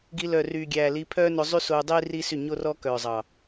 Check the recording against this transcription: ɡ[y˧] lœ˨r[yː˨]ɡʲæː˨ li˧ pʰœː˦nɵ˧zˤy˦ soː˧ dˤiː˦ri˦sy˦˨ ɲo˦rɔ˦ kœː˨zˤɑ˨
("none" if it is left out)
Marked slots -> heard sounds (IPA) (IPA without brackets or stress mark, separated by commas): i˧, yː˨